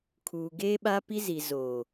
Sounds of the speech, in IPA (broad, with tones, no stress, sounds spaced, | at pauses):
kʰ uː˨ ɡ eː˦ ɓ a˦ p i˦ z i˨ z oː˨